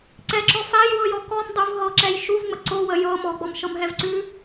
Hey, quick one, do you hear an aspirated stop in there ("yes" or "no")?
no